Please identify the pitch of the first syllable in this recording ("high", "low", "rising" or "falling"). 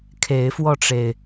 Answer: rising